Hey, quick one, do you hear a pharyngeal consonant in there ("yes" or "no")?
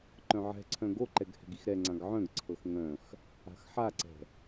yes